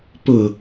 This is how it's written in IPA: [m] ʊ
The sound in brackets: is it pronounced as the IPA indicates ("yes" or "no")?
no